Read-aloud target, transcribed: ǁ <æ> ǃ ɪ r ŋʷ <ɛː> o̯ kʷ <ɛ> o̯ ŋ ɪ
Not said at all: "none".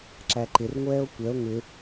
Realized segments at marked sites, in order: æ, ɛː, ɛ

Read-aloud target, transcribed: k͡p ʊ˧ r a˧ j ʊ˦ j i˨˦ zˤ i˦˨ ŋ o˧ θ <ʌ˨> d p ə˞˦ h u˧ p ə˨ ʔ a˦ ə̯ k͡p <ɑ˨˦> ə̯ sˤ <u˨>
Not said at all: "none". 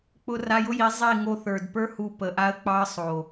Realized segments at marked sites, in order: ə˞˨, ɑ˦, o˨

